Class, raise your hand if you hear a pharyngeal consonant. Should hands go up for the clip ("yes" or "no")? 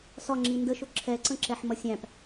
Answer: yes